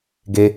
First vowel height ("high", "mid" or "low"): mid